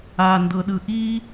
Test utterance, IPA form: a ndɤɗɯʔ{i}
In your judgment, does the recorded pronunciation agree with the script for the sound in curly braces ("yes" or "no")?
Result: yes